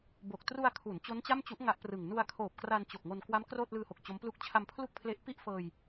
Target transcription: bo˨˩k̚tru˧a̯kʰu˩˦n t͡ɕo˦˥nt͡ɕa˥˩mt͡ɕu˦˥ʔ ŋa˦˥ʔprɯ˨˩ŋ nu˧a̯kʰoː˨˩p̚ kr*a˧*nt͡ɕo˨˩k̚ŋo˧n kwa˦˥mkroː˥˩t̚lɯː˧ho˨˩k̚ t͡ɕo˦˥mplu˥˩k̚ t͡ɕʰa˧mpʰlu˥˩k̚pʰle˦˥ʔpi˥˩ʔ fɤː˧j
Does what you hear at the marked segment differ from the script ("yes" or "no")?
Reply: no